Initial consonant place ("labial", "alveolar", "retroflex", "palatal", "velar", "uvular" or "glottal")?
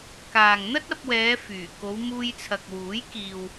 velar